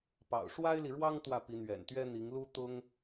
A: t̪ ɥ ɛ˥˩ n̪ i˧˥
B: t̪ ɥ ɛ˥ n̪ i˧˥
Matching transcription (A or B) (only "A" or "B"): B